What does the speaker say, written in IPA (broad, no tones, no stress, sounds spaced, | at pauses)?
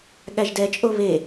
ɠ æ ʒ d ɛ t͡ʃʼ o β e